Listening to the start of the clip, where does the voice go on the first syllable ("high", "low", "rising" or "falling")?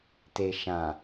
low